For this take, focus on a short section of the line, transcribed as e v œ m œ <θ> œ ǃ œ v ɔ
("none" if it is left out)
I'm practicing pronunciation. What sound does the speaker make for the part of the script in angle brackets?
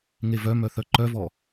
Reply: θ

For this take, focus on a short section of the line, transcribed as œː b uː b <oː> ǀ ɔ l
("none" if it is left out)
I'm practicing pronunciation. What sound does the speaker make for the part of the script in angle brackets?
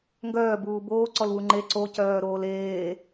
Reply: oː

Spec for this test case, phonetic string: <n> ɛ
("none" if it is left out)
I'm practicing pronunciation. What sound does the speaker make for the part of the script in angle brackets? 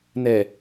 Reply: n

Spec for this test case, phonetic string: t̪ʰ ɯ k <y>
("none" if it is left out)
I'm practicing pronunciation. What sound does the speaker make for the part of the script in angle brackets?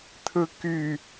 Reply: y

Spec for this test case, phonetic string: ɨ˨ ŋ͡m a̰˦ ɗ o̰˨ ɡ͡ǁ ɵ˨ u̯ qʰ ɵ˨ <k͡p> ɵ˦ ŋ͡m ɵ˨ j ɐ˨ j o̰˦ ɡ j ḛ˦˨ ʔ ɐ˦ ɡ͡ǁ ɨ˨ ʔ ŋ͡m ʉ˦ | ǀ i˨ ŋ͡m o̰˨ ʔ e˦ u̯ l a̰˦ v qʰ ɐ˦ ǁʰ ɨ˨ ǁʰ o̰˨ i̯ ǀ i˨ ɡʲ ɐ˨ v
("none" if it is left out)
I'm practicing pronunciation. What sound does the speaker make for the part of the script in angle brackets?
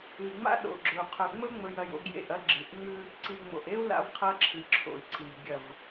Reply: ŋ͡m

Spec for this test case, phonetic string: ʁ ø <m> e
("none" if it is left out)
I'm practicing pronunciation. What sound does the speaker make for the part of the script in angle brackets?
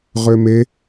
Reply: m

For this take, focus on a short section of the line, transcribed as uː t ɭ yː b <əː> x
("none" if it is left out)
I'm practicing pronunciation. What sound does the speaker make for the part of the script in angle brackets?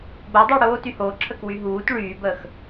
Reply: əː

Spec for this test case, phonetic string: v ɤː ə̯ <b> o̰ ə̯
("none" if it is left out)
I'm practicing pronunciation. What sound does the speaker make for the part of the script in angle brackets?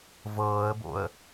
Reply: b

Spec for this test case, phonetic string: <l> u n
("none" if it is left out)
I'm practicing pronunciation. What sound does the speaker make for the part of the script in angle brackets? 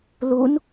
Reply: l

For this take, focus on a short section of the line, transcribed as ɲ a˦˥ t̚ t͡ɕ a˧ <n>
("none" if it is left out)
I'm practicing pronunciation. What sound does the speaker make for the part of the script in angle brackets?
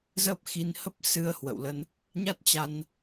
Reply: n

